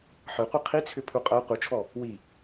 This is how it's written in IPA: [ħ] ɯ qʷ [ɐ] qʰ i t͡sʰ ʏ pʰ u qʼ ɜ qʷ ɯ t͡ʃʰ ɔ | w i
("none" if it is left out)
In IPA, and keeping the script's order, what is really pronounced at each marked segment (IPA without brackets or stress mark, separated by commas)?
ħ, ɐ